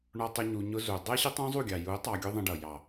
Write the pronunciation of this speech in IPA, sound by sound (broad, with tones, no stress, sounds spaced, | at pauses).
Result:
ɳ ɔ˧ tˤ ə˧ ɲ u˧ ɲ ʊ˦ z u˨ dˤ ɛ˦ ɕ ɪ˦ tˤ ũ˦ zˤ u˦˨ ɡʲ ɑ˨ j u˨˦ tˤ ɑ˧ ɡʲ ʊ˦ ðˤ ə̃˧ ɖ ʌ˨ j ɑ˨